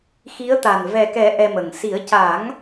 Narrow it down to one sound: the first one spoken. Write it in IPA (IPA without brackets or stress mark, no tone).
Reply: x